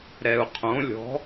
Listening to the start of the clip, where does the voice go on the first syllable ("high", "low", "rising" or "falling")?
low